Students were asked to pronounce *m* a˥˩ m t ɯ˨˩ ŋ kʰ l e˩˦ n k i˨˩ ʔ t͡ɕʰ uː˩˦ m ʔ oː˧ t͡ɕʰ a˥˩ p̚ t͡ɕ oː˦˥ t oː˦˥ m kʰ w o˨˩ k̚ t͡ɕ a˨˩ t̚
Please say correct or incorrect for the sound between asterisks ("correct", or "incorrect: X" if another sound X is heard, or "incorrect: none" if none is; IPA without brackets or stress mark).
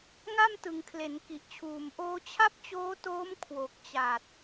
incorrect: ŋ